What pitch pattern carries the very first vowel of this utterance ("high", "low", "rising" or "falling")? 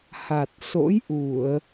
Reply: low